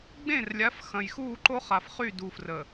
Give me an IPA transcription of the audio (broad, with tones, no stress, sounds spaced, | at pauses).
ɡ͡b ẽ˦˨ r lʲ a˨˦ f x ɐ̃˨ j x uː˦˨ ǃ o˦ χ a˨ f χ y˦˨ d u˨ f r əː˨